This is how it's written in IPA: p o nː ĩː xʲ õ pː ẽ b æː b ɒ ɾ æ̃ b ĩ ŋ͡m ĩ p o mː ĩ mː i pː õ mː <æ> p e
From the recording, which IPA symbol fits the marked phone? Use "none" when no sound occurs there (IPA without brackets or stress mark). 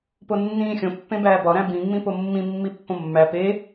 æ